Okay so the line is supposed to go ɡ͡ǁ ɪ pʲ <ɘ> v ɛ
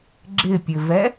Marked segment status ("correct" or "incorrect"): correct